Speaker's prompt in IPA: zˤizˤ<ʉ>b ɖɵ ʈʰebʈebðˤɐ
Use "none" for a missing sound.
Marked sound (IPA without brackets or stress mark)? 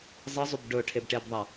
ʉ